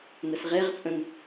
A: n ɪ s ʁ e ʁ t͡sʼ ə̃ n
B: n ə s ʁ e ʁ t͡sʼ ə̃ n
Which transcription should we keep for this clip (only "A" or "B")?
B